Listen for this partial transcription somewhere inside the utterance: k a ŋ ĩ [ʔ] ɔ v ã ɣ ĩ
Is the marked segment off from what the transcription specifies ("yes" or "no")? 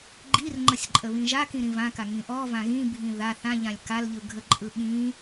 no